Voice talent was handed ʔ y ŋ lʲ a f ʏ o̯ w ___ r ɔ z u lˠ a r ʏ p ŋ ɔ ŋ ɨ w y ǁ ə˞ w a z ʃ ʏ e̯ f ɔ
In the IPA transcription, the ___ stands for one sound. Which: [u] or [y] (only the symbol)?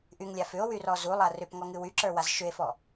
y